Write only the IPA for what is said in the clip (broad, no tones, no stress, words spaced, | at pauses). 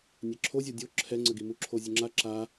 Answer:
nʲɛǁʰozʲɔ dʲo ǁʰɛŋ͡ǀəɡi muǁʰozʲəŋ͡ǁa ǁa